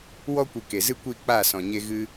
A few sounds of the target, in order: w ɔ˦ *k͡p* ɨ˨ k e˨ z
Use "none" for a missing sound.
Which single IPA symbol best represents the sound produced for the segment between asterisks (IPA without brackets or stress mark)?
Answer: kʷ